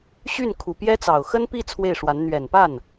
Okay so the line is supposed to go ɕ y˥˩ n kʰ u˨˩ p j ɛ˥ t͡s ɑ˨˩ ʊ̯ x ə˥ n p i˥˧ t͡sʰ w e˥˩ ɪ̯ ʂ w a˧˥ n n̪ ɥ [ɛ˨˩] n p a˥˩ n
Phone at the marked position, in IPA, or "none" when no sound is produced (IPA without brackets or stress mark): ɛ˨˩